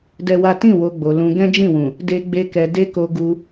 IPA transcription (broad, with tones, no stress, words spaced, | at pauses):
dɛ˦wa˦ tĩ˦˨ wo˧ɡ͡bo˨ lũ˧ ɡɛ̃˦d͡ʒĩ˦˨wũ˨ | de˦ɡ͡be˦kɛ˧ de˦ ko˦ɡu˦